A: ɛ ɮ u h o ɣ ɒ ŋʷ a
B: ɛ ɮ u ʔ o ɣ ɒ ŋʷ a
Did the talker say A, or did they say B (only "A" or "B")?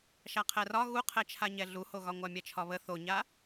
A